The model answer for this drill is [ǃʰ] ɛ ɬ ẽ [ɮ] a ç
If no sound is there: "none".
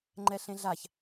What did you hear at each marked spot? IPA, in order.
ŋ͡ǃ, ɮ

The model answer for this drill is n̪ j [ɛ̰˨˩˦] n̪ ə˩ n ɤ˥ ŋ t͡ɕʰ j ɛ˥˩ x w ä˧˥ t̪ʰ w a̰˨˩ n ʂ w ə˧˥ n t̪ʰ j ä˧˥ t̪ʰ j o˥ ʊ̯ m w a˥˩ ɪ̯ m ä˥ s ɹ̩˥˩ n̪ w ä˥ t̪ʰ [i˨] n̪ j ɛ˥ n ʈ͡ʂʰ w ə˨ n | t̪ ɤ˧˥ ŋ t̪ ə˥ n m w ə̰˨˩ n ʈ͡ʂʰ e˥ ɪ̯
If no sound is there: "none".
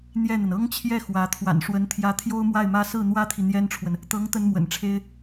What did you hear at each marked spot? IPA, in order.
ɛ˥˩, i˨

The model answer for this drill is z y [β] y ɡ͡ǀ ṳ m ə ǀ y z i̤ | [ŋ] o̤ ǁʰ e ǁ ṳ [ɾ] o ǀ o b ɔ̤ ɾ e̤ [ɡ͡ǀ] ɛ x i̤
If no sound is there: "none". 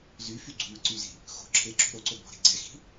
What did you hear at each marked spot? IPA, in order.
f, x, ɾ, ɡ͡ǀ

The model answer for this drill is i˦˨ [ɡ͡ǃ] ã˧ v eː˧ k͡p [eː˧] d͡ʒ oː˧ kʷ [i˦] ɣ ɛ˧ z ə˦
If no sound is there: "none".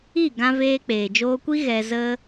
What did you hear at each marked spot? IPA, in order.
ɡ, eː˨, i˦

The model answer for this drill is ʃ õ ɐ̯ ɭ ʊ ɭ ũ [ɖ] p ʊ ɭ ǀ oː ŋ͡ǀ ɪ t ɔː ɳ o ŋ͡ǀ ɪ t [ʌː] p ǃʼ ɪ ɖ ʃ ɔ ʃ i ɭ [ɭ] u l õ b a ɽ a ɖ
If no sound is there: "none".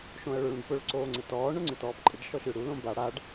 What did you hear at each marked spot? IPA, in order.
ɖ, ɔː, ɽ

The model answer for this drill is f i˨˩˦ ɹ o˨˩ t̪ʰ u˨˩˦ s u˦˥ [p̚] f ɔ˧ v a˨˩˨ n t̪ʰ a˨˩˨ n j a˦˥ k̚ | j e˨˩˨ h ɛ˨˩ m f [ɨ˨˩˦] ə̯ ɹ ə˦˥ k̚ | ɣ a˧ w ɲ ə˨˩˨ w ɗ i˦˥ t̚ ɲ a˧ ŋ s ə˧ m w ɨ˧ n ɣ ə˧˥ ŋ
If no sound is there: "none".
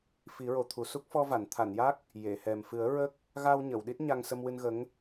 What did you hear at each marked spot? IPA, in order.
k̚, ɨ˨˩˦

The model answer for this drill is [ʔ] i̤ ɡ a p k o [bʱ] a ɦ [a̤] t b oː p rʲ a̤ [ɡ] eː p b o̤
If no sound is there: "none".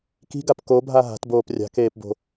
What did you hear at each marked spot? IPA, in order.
k, bʱ, a̤, k

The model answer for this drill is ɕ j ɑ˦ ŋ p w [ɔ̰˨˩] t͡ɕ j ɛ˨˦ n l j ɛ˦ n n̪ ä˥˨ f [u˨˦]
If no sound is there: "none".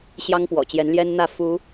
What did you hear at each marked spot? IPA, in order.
ɔ̰˨˩, u˨˦

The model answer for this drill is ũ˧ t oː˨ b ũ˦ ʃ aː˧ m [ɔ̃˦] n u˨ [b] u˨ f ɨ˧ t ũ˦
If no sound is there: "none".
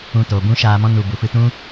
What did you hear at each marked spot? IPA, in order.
ɔ̃˦, b

